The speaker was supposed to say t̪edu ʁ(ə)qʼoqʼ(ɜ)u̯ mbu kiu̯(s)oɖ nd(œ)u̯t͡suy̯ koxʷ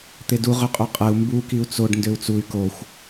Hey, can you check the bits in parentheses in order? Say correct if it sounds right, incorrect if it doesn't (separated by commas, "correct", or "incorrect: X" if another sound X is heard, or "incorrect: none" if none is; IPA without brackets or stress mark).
incorrect: ø, correct, incorrect: t͡s, incorrect: ø